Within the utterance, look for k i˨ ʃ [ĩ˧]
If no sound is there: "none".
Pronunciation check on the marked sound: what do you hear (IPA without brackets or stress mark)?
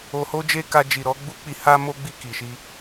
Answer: i˧